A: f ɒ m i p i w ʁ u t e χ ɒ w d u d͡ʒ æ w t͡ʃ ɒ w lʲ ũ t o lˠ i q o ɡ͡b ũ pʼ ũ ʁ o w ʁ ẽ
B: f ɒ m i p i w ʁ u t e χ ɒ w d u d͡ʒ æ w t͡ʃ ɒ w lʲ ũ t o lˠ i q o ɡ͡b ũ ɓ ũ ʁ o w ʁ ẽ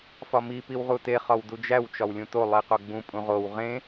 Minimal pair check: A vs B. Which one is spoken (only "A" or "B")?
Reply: A